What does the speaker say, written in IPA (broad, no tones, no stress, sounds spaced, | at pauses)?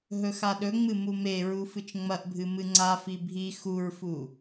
ɦ ɵ x a ɗ ɵ ŋ͡m ɨ m u m e ɹ u f ɨ t͡ʃ ŋ͡m ɐ ʔ bʱ ɨ m ɨ ŋ͡ǀ a f i bʱ i x u ɹ f u